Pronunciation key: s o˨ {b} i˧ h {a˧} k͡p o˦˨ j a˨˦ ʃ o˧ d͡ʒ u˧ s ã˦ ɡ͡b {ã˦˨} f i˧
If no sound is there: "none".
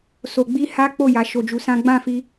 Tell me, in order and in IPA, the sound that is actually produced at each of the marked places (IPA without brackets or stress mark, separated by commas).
ɡ͡b, a˦, ã˦˨